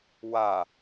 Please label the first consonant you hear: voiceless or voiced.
voiced